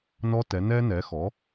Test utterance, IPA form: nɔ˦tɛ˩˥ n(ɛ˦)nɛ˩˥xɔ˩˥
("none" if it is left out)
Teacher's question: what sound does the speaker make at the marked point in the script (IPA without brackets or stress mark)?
ɛ˦